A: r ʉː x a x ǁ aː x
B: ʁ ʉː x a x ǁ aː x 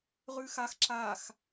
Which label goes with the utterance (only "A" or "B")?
B